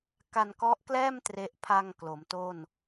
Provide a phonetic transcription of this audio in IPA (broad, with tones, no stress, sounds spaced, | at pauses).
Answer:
k a˧ n k ɔ˦˥ ʔ k l ɛː˥˩ m t r e˦˥ ʔ pʰ a˧ ŋ k l o˩˦ m t o˥˩ n